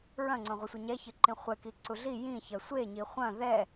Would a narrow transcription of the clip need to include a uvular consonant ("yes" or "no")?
yes